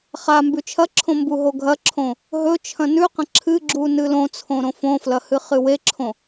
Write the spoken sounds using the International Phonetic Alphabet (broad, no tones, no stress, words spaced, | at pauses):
χa mbʉt͡ʃʰɐǁʰõ mbuɦoɡʱɐǁʰõ | ɦɵt͡ʃʰɐ̃ nʉqɐ̃ ǁʰɨɡ͡ǁu nɨlõt͡sʰõ ɾõfõflɐ hɨχɨweǁʰõ